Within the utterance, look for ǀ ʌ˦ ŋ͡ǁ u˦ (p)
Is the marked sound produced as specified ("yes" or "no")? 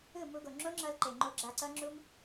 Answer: no